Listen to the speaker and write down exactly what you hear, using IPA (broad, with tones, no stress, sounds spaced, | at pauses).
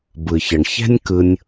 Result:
b ɯ˨ ç ə˨ ɳ ç ɛ̤˦ nʲ k ɯ˧ nʲ